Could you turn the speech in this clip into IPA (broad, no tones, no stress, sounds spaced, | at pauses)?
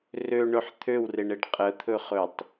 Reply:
r ø ɳ ɵ ħ t̪ʰ ø w r e ɳ e ɖ qʼ ə t̪ʰ ɵ χ ɵ tˤ